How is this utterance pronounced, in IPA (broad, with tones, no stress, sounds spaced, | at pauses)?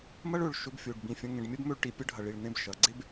m ɐ˥ ɭ ɵ˧˩ ɭ ʃ ɵ˧ b fʲ o˧˩ ɖ b ĩ˧˩ fʲ ɐ̃˧ ŋ ẽ˧˩ ɖ mʲ ɐ˥ b m ɵ˥˧ ɭ ʈ i˧ pʲ ə˥ ɖʱ ɐ˧˩ ɭ i˧˩ ɭ n ẽ˥˧ b ʃ ɐ˩˧ ɡ͡ǀ e˥ b